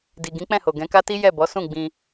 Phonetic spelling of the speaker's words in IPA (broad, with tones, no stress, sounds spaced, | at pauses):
d i˨ ɡ ĩ˨˦ k͡p ɛ̃˦˨ h o˨ ɡ ɛ̃˨˦ k a˦ t i˦ j ɛ˦˨ b ɔ˨˦ s ũ˦˨ ɡ͡b ĩ˧